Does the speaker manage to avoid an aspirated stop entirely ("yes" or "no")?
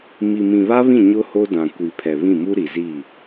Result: no